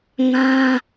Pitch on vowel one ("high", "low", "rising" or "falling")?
high